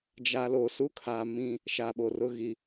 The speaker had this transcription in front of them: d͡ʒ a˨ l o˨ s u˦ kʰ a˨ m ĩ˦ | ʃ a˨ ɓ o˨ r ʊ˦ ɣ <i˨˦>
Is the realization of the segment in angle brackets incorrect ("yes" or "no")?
yes